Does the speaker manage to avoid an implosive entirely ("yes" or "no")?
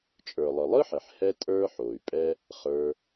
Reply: yes